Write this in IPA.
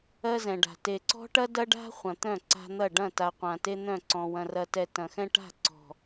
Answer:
ɜ˦ z ɛ̃˨ ɖ a̤˨ t e˨ ǀ ɔ̤˦ ʈ ɐ˦ d ɐ˦ ɖ a̤˦ χʷ ɐ̃˨ t̪ œ̃˦˨ ǀ a̤˦ n̪ ɐ˦˨ ɖ ɐ̃˦˨ t a˨ qʷ ã˨ t e˦ n̪ œ̃˦˨ ǀ ɔ̃˨ w ɐ̃˨ r ɐ˨ t ɛ˨ t ɐ̃˨ x ɛ̃˦ ʈ a̤˦˨ ǀ ɔ̤˨

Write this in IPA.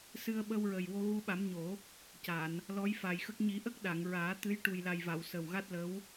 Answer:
s ɨ˧ ə̯ ɓ ə˧ w ɹ ə˨˩ j w o˧ ɣ u˧ ɓ a˨˩˦ m ɲ o˨˩˦ | c a˨˩˨ n | l ɔ˧˥ j f aː˨˩ j x ə˦˥ k̚ ɲ i˨˩˦ ʔ ə˦˥ k̚ ɗ a˨˩˨ ŋ ɹ aː˨˩˦ t̪ ɨ˧˥ j ʈ u˨˩ j l a˨˩ j v a˨˩˨ w s ə˨˩ w ɣ a˦˥ t̚ l ə˧˥ w

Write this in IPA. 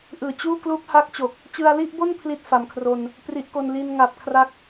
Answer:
ʔ ɯː˨˩ t͡ɕ uː˥˩ k l uː˦˥ k̚ h a˦˥ k̚ t͡ɕ o˨˩ k̚ | t͡ɕ ɯ˧ a̯ l i˥˩ ʔ b o˥˩ n pʰ l i˥˩ t̚ f a˩˦ m kʰ r o˧ n | p r i˦˥ ʔ k o˧ n l i˧ n ŋ a˨˩ p̚ kʰ r a˥˩ k̚

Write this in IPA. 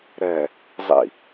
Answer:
ɾ ɛ | zˤ ḭ

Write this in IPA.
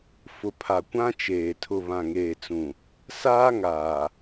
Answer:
f ʊ˨ pʰ a˨ kʷ ã˦ t͡ʃ eː˨ tʰ ʊ˨ β ã˨ ŋ eː˨ t͡s ũ˨ | s aː˦ ŋ aː˨

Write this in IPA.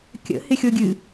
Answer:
kʲ ə̰ h ɪ xʲ o ɡʲ ɨ

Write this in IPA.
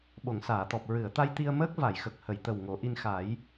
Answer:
ɓ o˨˩˨ ŋ s aː˨˩˨ t̪ ɔ˨˩ p̚ ɹ ɨ˨˩˨ ə̯ t̪ a˧ j t̪ i˧ ə̯ m əː˦˥ k̚ v a˨˩˨ j x ə˨˩ k̚ h ə˨˩˨ j t̪ ə˨˩ w ŋ o˨˩˦ ʔ i˧ n x a˨˩˦ j

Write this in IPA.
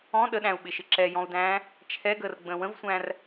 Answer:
ɔ̃ ɗ ə ɗ æ̃ u̯ ɓ ɪ ʃ ɪ ǁ ɛ j ɔ̃ u̯ d æ̃ː | t͡ʃʰ ɛ ɡ əː r ɡ͡b ə̃ː w ə̃ v sʷ æ̃ r

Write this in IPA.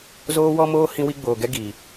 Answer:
z oː˦ w ɔ˦ m oː˦ h ĩ˦ w i˦ ɡ͡b oː˨ ɡ ɛ˦ ɡ i˨

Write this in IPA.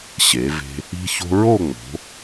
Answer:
ɕ e˩˧ v e̤˧ | i̤˧ ç o̤˧ ɹ o˥˧ ŋ͡m o̤˩˧

